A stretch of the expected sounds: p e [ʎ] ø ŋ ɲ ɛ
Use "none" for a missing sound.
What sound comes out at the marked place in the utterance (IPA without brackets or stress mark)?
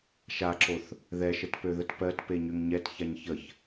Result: ɲ